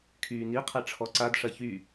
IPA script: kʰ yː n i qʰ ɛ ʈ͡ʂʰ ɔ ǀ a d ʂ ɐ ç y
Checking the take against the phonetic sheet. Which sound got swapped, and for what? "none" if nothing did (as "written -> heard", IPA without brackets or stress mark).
none